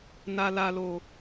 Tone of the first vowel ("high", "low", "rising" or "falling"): low